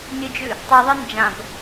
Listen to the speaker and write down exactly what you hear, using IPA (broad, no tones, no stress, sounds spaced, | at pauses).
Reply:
nʲ ɨ d͡ʒ ʉ | tˤ ʉ ðˤ ɨ n d͡ʒ ã b